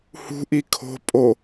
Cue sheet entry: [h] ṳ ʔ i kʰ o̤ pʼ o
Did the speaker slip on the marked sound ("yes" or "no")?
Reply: no